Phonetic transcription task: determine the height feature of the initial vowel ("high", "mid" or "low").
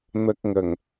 low